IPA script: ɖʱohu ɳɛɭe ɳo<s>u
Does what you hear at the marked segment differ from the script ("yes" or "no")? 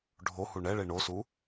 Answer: no